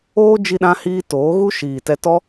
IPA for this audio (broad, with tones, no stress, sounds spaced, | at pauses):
oː˦ d͡ʒ i˧ ɗ ã˧ h iː˧ t oː˨˦ ɣ u˦ ʃ iː˨ t ɛ˧ t ɔ˦